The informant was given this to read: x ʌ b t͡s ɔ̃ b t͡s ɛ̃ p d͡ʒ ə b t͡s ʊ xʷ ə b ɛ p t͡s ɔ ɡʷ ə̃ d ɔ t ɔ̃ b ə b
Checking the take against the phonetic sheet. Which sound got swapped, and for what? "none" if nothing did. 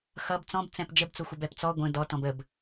none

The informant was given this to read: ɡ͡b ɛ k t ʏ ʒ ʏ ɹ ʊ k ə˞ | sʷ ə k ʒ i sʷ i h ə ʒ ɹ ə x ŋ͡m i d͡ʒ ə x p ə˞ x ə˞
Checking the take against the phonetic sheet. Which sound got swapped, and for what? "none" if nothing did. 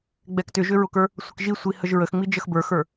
p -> b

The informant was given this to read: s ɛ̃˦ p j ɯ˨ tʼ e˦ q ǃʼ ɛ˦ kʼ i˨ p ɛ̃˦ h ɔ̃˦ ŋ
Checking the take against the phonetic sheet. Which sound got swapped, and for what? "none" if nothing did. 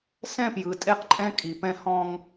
ɛ˦ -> ɛ̃˦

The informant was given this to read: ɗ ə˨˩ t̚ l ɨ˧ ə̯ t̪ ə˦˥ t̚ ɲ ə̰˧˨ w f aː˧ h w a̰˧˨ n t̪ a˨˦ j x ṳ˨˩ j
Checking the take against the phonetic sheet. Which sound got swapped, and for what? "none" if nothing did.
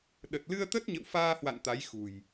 none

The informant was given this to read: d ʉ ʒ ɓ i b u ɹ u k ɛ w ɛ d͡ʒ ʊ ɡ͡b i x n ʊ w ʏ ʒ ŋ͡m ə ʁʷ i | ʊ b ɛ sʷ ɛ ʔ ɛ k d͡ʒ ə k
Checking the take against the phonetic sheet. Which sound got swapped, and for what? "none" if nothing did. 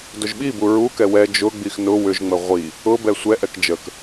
ʉ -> ʊ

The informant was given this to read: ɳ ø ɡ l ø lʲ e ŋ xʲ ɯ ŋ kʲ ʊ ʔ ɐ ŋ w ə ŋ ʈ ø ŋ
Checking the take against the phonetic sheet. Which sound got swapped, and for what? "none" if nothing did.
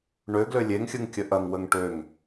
ʊ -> ə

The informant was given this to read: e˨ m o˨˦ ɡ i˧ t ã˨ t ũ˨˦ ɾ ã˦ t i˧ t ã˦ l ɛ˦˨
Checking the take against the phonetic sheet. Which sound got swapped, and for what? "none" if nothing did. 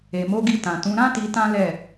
none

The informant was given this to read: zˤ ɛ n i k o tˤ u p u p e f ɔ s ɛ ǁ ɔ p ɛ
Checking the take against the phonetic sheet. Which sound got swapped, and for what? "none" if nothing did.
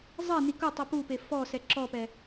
none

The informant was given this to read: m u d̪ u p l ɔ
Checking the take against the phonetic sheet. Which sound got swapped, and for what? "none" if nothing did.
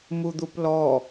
none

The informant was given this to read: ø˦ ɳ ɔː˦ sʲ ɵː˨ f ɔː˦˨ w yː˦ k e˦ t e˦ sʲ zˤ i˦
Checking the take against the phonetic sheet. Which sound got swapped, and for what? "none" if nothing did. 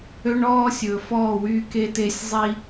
none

